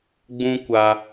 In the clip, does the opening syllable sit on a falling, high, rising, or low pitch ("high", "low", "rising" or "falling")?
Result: high